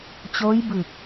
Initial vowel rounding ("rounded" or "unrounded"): rounded